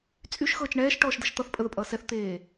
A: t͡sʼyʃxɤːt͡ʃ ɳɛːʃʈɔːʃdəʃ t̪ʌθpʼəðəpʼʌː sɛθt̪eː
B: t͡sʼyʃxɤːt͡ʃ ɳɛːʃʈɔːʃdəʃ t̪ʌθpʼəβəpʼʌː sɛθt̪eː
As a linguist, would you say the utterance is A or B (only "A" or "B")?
A